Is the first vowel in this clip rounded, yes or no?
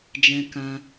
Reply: no